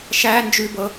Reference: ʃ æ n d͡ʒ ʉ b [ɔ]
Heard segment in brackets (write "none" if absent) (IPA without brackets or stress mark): ɤ